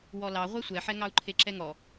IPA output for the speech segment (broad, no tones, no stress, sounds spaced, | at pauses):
w ɔ l ɑ ʁʷ ɛ sʷ ɛ ħ ɛ ŋ ɑ u̯ ǃʰ e ǁ ɛ ŋ ɔ